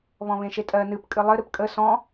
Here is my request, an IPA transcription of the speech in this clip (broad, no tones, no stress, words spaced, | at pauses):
βɔ̃βẽʃetʼɜ nɨp kʼɨlˠɘ ɾɨpkʼə sɔ̃